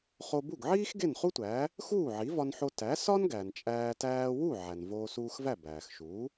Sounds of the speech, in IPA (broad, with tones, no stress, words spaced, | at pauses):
χo˧ bu˥˩ɡʕiː˥x ɡe˥˩nχu˥tʷæː˩˥ | xuː˥˩ʕi˩˥vɒ˧nħo˧ tæ˩˥sɒ˥n ɡæ˩nt͡ʃʼæː˧ tæː˧wu˥˩ ʕæ˩nvoː˧suː˧xvæ˥˩ bæː˩xʃuː˩˥